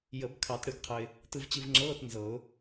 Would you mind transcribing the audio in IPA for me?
j ə˨˩˦ b kʰ ɑ˨˩˦ t ɽ ɨ˨˩˦ ɡ qʰ ə˧ ɪ̯ | t ɯ˧ v t͡ɕ ɨ˧ v ŋ͡ǁ ɤː˧˥˧ t n z ɤ˨˩˦ ʊ̯

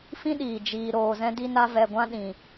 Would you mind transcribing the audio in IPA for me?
f ĩ˦ ɗ iː˨ d͡ʒ iː˧ ɾ oː˧ z ɛ̃˦ d i˦ n a˦ v ɛ˧ ɡʷ ã˦ ɗ ĩ˧

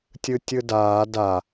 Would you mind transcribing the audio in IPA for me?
tʲ ɯ tʲ ɯ d aː d a

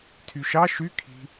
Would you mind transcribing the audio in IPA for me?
tʰ y ʃ ɑ ʃ y kʰ i̤

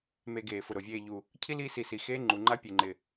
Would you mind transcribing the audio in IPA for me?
m e˨ ɡ eː˩ f ʊ˩ ɾ o˩ vʲ eː˨ ʎ u˩ | cʰ i˥ l iː˦ s i˨ s i˩ x eː˦ ŋ͡ǃ u˩ ŋ͡ǃ a˦ pʲ e˨ ŋ͡ǃ ɪ˨

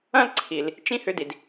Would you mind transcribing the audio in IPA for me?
ɐ̃˥ l ǀʰ i˨ l | t͡ʃ ĩ˥ h ʏ˦ d i˨ d

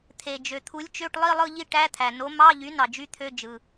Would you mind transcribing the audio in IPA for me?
t̪ʰ e˩ d͡ʒ ø˩ t̪ʰ u˩˥ lʲ t͡ʃ ø˧˥˧ ʈ lˠ i˦˨ lˠ ɯ˦˨ ʎ i˦˨ ʈ æ˧˥˧ t̪ʰ æ˩ n o˩˥ m ɑ˧˥˧ ʎ y˩˥ n ɑ˩ d͡ʒ y˧˥˧ t̪ʰ ø˧˥˧ d͡ʒ ɯ˩

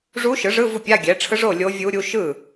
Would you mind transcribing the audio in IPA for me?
ʐ u˧˥ ʃ ɯ˩˥ ʐ ɯ˧˥˧ v u˥˩ pʲ a˧˥˧ ɡʲ ɛ˩˥ ʈ͡ʂʰ ɯ˧˥ ʐ o˥˩ lʲ o˧˥ vʲ u˧˥ ɾʲ u˧˥ ʃ ɯ˥˩

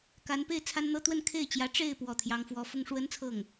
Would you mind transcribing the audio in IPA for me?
k a˧˥ n p e˥ ɪ̯ t͡sʰ a˥ n n̪ ɤ˥ t̪ w ə˥˧ n kʰ e˥˩ ɪ̯ t͡ɕ j ä˧˥ ʈ͡ʂ e˥˧ ɪ̯ p w ɔ˥˩ t̪ʰ j ɑ˥ ŋ f w ɔ˥ f ʊ˥ ŋ ʂ w ə˥ n t͡sʰ ɤ˥˩ ŋ

